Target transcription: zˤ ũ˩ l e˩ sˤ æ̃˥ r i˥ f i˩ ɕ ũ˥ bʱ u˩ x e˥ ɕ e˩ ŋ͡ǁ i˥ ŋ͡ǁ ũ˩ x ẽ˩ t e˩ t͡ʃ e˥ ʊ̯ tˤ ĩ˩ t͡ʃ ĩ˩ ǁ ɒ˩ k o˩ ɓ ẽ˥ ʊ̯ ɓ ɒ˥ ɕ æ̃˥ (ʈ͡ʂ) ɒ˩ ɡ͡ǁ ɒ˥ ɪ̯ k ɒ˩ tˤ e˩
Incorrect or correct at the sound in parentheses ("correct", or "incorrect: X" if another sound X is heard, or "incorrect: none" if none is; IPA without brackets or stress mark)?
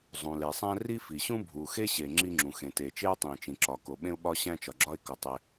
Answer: incorrect: t͡ʃ